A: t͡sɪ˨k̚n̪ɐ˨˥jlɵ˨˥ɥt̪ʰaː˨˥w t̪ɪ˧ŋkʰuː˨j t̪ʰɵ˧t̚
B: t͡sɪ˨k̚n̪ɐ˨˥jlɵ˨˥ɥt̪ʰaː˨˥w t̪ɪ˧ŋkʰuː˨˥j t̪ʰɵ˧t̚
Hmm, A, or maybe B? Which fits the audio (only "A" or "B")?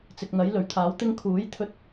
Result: B